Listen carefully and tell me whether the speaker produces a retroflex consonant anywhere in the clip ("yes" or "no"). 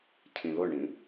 yes